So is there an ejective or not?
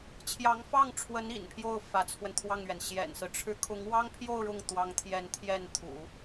no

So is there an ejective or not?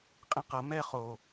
yes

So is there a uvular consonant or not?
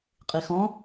yes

